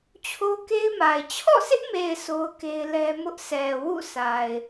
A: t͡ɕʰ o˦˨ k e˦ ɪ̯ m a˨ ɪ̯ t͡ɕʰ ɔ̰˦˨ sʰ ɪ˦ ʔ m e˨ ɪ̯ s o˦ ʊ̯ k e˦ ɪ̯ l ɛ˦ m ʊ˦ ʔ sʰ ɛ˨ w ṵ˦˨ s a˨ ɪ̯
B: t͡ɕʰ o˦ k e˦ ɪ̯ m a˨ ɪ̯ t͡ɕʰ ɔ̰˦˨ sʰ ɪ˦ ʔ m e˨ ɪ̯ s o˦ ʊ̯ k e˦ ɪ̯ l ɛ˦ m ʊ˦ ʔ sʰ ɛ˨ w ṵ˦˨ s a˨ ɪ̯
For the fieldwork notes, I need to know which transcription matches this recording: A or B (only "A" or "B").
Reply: B